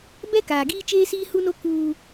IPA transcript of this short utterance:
b ɛ˦ k aː˨ ɡ iː˦ t͡ʃ eː˦ s iː˦ h u˦ n o˦ k uː˦

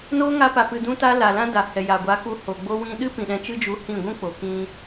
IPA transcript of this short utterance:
n oː˦ ŋ a˧ p a˨ p ɨ˨ d ũ˧ t a˧ l a˨ l ã˦ d a˨ h ɛ˨ j a˨ ɡʷ a˨˦ k u˧ h o˨ ɡ͡b o˧ w ĩ˧ ɗ ɨ˦ p ĩ˨ ɗ ɛ̃˧ t͡ʃ ɨ˦ d͡ʒ u˨˦ h ĩ˦˨ ɡʷ ũ˦ k͡p o˨ k ĩ˧

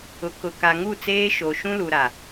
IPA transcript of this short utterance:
ʊ˨ k ʊ˨ k a˨ ŋ u˦˨ t͡s eː˦ ʃ o˨ ʃ ũ˦ l u˨ ɾ a˨

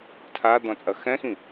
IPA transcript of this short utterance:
tʰ a d̪ ɔ̃ t͡sʼ ɐ x ɛ̃ x ĩ

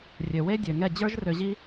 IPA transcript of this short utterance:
rʲ ø˨ w e˦ dʲ ø˨ ŋ ɛ˦˨ d͡ʑ ə˞˦ ʒ r ø˧ ʑ i˦

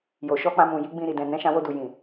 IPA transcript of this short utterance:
j o˨ ʃ ɔ˧ k͡p ã˧ m ũ˨ j i˨˦ ɡ͡b ĩ˧ ɾ i˨ d ɛ̃˨ n ɛ̃˨˦ ʃ ã˧ w o˧ d u˨ j ĩ˨

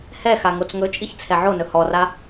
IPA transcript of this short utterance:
h ɛ x a ŋ o t͡s ŋ ɵ t͡ʃʼ i ç t͡sʰ ɛ ʕ o n ɵ h ɔ r a

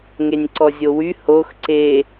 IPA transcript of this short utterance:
ŋ e nʲ ǀ ɔ zʲ o w y h o x ǀ e

